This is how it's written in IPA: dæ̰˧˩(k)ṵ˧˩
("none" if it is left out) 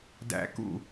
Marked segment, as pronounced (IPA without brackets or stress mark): k